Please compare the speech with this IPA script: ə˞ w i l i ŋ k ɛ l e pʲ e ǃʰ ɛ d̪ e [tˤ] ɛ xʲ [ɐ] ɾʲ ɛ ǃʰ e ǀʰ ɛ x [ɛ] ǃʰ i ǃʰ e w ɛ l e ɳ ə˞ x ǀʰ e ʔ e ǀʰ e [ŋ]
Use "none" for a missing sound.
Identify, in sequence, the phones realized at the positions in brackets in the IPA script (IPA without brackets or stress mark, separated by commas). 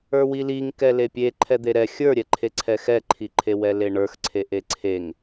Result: ɾ, ə˞, ɛ, ŋ